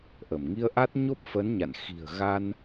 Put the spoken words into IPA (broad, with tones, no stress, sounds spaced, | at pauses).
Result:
ʔ ə˧˩ m ŋ i˧ ə̯ ʔ a˦˥ t̚ ɲ o˦˥ p̚ f ə˨˦ n ɲ a̰˧˨ n x i̤˨˩ ə̯ ɣ a˧ n